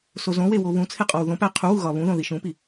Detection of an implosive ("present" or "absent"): absent